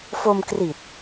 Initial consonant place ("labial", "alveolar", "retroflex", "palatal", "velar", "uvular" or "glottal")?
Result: labial